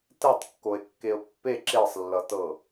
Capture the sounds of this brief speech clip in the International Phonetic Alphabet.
tɛtˤkːoe̯kːeo̯ pːe ǁesˤlːʌtɤ

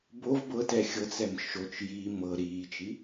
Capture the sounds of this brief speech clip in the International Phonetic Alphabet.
bov bɤtɛ xʲɤt͡sɛm ʃot͡ʃ ji mɤ ɾiːt͡ʃi

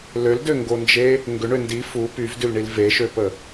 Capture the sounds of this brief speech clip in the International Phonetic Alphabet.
løldøŋɡond͡ʒe | ŋɡʏɳø ndi fu pyvdylɳil veʃøpə

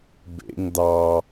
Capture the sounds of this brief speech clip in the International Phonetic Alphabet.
bḛŋ dɑ

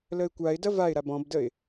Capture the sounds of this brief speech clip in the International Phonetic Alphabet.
ləɪ̯kʷaɪ̯dɐ vaɪ̯ɾab ɔ̃bdəɪ̯

